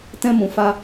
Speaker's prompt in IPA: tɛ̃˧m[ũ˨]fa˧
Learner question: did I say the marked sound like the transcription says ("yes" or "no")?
yes